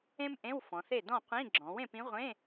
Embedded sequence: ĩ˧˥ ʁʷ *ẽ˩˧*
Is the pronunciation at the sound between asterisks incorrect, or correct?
incorrect